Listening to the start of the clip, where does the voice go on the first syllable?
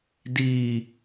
low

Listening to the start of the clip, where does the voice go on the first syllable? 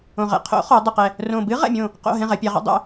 low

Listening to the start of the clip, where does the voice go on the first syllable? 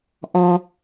high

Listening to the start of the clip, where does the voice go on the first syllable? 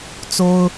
high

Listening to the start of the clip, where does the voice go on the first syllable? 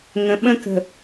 low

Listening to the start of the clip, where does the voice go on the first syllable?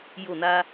falling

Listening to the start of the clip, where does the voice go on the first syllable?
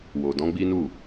low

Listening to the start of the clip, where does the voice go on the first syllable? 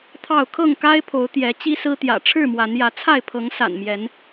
falling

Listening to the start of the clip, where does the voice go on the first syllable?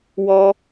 high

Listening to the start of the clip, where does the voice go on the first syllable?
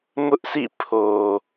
high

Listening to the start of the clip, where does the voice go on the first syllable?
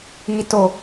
low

